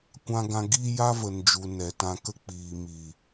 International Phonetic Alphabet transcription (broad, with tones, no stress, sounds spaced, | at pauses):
kʷ ã˧ ɡ ã˧ ɡ iː˦ j a˦ v ə˨ n d͡ʒ u˨ n ɛ˨ t ã˧ k ə˦ k͡p iː˨ m iː˨